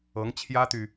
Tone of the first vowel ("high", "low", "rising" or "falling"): rising